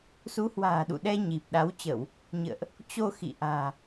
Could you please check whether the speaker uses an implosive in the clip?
yes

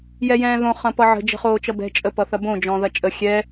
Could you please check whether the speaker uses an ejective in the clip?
yes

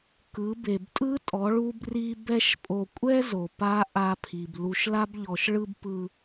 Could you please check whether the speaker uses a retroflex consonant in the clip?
yes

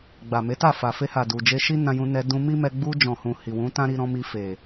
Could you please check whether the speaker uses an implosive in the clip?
no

